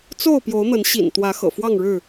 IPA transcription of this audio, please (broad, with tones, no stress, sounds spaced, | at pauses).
t͡s o˥˨ ʊ̯ p j o˨˦ ʊ̯ n̪ ə˨˦ n ɕ ḭ˨˩ n t̪ w ä˨˦ x ɤ̰˨˩ f w ɑ˥˨ ŋ ɻ ɻ̩˥˨